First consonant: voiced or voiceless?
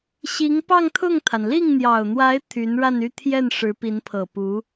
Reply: voiceless